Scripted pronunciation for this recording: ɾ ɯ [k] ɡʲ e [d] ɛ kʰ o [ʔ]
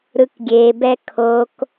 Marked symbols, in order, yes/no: yes, no, no

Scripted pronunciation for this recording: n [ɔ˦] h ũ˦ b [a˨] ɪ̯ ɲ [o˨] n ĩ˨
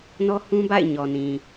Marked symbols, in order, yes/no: yes, no, no

